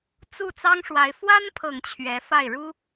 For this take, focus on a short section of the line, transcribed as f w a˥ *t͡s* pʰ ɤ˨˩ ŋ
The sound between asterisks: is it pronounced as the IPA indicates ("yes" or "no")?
no